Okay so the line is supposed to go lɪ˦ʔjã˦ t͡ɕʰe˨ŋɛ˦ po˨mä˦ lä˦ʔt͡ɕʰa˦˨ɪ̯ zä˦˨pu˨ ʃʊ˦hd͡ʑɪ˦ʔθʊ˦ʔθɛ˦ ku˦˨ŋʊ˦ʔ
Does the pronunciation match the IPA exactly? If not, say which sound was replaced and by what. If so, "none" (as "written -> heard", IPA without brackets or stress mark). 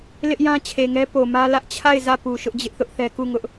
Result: h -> ʔ